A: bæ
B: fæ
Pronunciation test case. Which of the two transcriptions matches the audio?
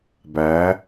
A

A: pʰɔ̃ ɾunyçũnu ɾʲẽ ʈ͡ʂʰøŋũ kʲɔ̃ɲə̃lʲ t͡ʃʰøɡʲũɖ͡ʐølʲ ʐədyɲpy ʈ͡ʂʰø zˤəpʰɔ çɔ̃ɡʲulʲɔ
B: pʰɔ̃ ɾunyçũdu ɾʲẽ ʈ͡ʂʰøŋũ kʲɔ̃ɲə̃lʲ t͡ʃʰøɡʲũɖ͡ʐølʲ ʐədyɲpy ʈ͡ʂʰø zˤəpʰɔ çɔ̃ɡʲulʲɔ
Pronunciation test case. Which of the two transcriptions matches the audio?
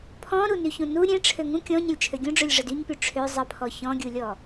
A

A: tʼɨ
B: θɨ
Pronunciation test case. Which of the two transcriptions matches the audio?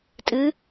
A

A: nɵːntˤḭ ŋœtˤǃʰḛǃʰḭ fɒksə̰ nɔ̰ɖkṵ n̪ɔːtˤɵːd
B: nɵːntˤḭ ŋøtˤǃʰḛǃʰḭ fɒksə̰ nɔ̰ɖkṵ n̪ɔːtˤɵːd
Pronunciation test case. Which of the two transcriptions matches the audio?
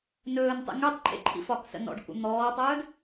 B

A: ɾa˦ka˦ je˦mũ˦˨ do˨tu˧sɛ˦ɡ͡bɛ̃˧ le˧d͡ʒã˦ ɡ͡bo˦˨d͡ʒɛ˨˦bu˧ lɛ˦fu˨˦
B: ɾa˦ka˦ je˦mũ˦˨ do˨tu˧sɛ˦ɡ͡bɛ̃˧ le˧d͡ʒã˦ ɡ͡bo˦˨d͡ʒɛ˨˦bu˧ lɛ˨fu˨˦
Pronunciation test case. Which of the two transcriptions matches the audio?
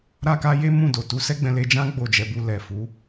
B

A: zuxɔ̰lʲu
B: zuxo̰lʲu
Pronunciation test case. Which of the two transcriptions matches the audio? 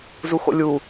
B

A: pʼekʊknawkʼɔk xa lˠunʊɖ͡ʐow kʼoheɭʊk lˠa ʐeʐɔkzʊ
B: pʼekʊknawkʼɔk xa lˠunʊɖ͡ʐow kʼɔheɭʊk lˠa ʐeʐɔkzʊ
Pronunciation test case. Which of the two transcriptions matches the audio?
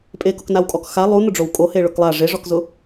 A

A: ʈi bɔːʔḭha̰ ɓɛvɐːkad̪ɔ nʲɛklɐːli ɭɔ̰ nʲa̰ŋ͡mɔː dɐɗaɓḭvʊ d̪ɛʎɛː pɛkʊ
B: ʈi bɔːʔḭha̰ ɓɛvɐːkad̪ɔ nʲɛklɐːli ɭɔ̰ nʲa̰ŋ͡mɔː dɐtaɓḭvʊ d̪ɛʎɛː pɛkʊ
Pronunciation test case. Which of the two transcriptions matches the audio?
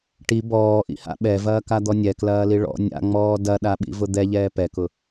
A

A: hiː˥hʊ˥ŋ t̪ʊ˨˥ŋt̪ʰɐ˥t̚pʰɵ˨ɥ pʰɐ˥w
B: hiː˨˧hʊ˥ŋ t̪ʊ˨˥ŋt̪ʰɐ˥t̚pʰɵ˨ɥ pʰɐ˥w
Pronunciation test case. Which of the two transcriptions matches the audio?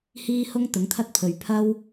A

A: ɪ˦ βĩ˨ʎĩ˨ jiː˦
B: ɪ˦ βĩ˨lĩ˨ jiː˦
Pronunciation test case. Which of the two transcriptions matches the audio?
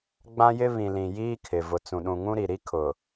B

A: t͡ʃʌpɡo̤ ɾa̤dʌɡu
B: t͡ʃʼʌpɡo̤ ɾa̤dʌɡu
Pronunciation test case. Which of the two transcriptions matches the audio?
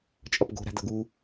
B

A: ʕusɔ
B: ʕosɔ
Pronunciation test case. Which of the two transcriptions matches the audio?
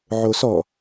B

